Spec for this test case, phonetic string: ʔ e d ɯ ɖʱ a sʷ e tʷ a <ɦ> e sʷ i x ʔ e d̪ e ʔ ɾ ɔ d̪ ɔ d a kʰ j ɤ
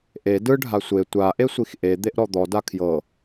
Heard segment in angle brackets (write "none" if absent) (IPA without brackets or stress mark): ʔ